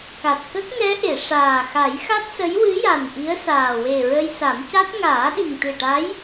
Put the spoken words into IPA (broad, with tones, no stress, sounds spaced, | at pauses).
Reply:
k a˨˩ t̚ k ə˦˥ k̚ ŋ ɛ˧˥ ʔ e˨˩˨ ʂ aː˨˩ x a˨˩˦ j x a˦˥ t̚ s ə˧˥ j w ɨ˧˥ j a˨˩ n ʔ i˧˥ ə̯ s aː˨˩ w e˨˩ ɹ ə˧ j s a˨˩˦ m c a˦˥ t̚ ŋ aː˨˩˦ ɗ i˨˩ ŋ t̪ ɨ˨˩ ʈ a˧˥ j